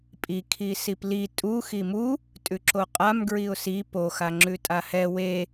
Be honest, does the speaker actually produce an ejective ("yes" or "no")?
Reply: yes